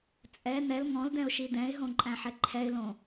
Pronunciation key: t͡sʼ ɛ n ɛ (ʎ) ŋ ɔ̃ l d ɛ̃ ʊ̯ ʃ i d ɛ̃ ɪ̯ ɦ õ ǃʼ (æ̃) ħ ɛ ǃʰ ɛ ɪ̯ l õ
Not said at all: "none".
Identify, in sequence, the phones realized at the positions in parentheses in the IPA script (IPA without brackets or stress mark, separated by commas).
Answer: l, æ̃